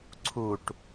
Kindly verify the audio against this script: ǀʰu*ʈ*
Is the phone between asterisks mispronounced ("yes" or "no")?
no